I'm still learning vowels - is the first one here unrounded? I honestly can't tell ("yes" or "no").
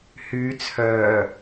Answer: no